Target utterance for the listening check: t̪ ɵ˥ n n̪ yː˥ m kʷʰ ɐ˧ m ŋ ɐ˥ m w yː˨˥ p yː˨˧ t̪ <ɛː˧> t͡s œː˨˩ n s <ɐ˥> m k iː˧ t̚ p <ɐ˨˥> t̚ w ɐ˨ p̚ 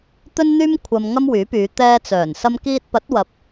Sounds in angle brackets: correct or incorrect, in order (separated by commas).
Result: correct, incorrect, correct